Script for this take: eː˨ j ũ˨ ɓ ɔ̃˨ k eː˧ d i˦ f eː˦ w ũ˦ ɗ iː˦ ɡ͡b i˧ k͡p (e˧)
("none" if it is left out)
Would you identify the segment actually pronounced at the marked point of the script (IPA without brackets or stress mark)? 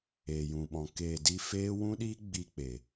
e˨